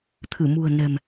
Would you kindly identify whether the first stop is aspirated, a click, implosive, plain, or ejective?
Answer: aspirated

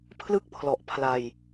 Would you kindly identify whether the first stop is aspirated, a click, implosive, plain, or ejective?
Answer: aspirated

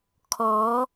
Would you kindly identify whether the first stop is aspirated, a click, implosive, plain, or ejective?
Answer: aspirated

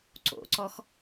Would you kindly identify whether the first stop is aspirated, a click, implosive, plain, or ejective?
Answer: click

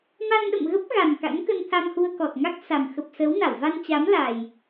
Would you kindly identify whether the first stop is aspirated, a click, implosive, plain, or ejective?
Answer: implosive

